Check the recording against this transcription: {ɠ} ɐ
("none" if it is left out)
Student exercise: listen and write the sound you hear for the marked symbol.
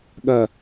ɠ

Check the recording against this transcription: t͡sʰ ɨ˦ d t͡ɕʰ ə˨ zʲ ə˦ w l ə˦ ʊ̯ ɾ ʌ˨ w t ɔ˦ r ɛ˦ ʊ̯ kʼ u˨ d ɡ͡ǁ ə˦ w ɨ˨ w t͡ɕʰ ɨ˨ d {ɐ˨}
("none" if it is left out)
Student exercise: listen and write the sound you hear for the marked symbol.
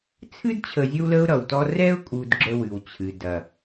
ɐ˨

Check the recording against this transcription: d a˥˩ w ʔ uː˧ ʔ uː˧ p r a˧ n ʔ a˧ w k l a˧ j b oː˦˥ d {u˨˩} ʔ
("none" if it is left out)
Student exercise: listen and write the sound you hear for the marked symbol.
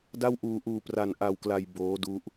u˦˥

